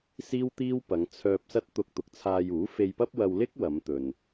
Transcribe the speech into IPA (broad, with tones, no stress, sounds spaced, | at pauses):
s iː˥ w t̪ iː˥ w p ɐ˨˧ ŋ t͡sʰ œː˧ p̚ s ɐ˥ t̚ t̪ ʊ˧ k̚ t̪ ʊ˨˥ k̚ t͡sʰ aː˧ j uː˨˥ f e˧ j p ɐ˥ p̚ w ɐ˧ w l ɪ˥ k̚ w ɐ˨˧ m t̪ ɵ˨ n